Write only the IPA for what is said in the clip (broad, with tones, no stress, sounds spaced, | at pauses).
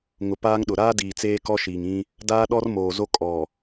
ŋ ʊ˨ p aː˦ ŋ ɗ ʊ˨ ɾ aː˦ d iː˨ t͡s eː˦ k ɔ˦ ʃ iː˨ ŋ ĩ˦ | d aː˦ ɗ ɔ˦ r m oː˨ z o˦ kʼ ɔ˨